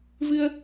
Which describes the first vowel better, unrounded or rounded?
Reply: unrounded